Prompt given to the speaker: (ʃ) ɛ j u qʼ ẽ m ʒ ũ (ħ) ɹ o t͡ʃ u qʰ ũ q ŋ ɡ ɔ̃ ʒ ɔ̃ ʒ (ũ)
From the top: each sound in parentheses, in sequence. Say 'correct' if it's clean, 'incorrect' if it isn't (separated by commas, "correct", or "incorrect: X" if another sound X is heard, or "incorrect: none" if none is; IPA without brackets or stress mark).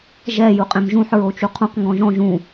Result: incorrect: ʒ, correct, correct